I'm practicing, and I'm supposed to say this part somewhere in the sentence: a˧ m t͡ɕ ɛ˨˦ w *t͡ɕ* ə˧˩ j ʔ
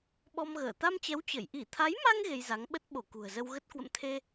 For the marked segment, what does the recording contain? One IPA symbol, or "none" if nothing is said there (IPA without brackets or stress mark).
t͡ɕ